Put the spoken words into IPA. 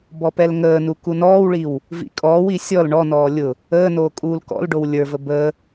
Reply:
b ɔ p ɛ l ŋ əː n u k u n ɔː w ɭ i w | v ḭ kʼ ɔː w i sʲ ɔ l ɳ ɔ n ɔː lʲ ʊ | əː n oː kʼ uː l k ɔ̰ l ɖ o w lʲ ə˞ v ə b əː

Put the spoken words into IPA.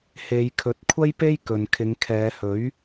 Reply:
h e˨˧ j kʰ ɵ˨˥ t̚ kʷʰ ɐ˥ j p e˥ j k ɵ˨ n kʰ ɪ˨˧ ŋ kʰ ɛː˨˧ h ɵ˨˥ ɥ

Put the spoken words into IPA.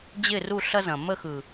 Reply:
d͡ʑ ɪ˦˨ r u˦˨ ɬ ɐ˦ z ɐ̃˨ m ə˦˨ x ɯ˨

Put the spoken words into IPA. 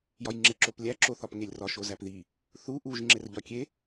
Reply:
j ɒ j ŋ͡ǁ e ǁ o p lʲ æ ǁ o θ ɒ p ŋ e lʲ r ɒ ʃ o z æ p ð i | θ u ʔ u ʒ ŋ͡ǁ e r ʎ ɒ kʲ e

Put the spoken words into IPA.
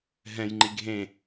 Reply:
ɦ ɛ̃ j ŋ͡ǃ i ɡʱ ẽ

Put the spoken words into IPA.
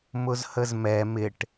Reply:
m ʊ z h ə z m ɛ m ɪ ʈ

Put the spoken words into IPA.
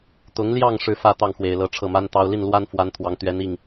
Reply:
t̪ ʊ˧˥ ŋ l j ɑ˥˧ ŋ ʂ ɻ̩˥˧ f ä˥˧ t̪ ɑ˥˩ ŋ x w e˨˩ ɪ̯ l ɤ˧˥ ʈ͡ʂʰ ɤ˥˩ m a˥ n t̪ ɑ˥ ʊ̯ l i˥˩ n l w a˥ n f w a˧˥ n t̪ʰ w ɑ˧˥ ŋ t̪ ɥ ɛ˧˥ n i˥˩ ŋ

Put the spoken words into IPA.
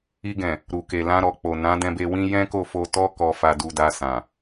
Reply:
i˧ ɡ ɛ̃˨ | ɾ u˨ k e˨ l ã˧ ɾ ɔ˨ k͡p o˨ n ã˨˦ d ɛ̃˧ b e˧ w ĩ˦ j ɛ̃˦ k o˦˨ f o˧ t ɔ˦ k ɔ˧ f a˧ d u˧ d a˧ s ã˨

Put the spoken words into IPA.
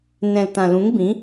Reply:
n ɛ̃˨ l t ã˨ l ũ˨˦ ŋ b ĩ˨˦

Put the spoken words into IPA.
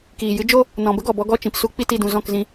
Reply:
k iː˨ j ɨ˦ d͡ʒ o˦ | n ɔ̃˨ b ə˦ ɡ ɔ˨ b ɔ˧ ɡ ɔ˦˨ t͡ʃ ĩ˨ p s u˦ k͡p i˦ t i˦˨ d ũ˧ z ɔ̃˦˨ k z ĩ˧

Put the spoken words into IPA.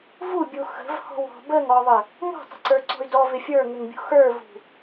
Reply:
v u bʲ u x ə̤ v h ɔ̤ w ɔ̤ b ə ŋ ɔ ðˤ ə | ŋ ɔ̤ tˤ ə̤ ǀ ə˞ ǀ ɔ̤ y̯ d ɔ v ɪ fʲ ə˞ ŋ ɪ ŋ bʲ ṳ x ə˞ v ṳ

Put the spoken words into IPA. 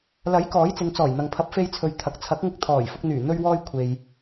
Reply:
l ɐ˨˥ j k ɔː˨˥ j t͡s ɪ˨˧ ŋ t͡s ɔː˨˩ j n̪ ɐ˨ ŋ pʰ ɐ˨˥ p̚ f e˧ j t͡sʰ ɵ˨ ɥ t̪ʰ ɐ˨ k̚ t͡sʰ ɐ˨˥ k̚ ŋ ɪ˧ k̚ t̪ʰ ɔː˨˩ j f ʊ˧ k̚ n̪ yː˨˩ n̪ ɵ˧ ɥ w ɔː˧ j kʷʰ e˨ j

